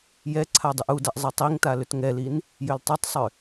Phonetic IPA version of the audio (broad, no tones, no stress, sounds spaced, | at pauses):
j ɛ ǀʰ a dˤ ɨ ʔ u d a ʔ zˤ ɨ tˤ i ŋ t a l ʏ t ŋ ɛ l i n | j ʏ l tˤ ʏ tˤ sˤ ʏ